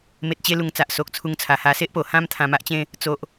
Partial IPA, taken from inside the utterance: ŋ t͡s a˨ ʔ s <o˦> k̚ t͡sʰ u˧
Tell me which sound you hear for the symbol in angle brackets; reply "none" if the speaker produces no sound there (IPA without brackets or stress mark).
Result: o˨